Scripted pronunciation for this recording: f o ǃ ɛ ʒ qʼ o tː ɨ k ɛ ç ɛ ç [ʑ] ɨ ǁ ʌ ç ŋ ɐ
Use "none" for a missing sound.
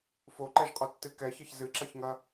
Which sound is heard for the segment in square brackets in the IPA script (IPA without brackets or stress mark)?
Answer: z